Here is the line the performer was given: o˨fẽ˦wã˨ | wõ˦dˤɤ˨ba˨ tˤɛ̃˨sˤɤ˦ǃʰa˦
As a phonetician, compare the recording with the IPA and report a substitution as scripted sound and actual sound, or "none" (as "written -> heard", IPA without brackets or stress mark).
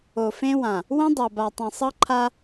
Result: none